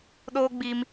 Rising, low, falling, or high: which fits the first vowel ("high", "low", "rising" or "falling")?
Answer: high